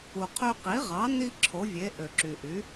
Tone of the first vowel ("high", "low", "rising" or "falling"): low